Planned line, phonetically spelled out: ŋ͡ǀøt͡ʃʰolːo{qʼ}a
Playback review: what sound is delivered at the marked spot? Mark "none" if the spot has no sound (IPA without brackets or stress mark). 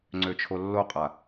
qʼ